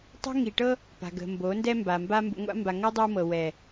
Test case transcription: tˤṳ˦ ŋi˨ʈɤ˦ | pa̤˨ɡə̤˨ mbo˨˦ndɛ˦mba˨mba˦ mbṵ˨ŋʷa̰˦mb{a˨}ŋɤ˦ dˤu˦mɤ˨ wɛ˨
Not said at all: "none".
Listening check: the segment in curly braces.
a˨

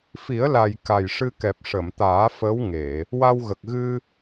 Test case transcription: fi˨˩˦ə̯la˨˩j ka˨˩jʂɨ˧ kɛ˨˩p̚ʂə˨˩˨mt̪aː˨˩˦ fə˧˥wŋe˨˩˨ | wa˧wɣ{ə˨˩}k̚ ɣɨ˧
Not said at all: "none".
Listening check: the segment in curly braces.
ə˨˩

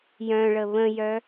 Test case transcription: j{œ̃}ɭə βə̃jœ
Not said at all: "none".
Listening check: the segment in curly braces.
œ̃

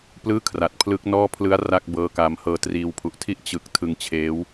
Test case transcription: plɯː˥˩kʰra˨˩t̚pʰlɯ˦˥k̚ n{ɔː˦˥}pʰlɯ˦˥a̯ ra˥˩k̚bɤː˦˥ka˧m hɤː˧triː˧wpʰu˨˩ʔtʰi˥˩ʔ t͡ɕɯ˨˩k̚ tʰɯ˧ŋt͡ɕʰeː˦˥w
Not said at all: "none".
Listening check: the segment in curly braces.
ɔː˥˩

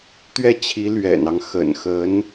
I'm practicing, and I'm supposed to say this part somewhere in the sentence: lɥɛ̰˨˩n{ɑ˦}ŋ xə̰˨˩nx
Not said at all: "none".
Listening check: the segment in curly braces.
ɑ˦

